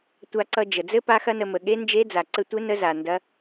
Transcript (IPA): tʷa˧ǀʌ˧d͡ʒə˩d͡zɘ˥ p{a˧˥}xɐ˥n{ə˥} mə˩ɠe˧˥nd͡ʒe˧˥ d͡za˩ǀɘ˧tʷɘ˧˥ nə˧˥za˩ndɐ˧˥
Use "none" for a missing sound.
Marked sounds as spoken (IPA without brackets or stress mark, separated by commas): a˥, ə˧